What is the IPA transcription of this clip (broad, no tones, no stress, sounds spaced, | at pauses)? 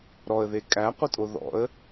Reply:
ɾ ɔ ə̯ ð e kʼ æ qʷ ə tʼ o ð ɔ̰ ə̯